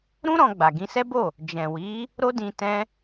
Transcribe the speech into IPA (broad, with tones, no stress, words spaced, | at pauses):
ɾũ˦ ɾɔ̃˧ɡ͡ba˨ ɡĩ˧sɛ˦bo˦˨ | d͡ʒɛ̃˨ wi˨˦ | ɾo˦dĩ˧ tɛ̃˧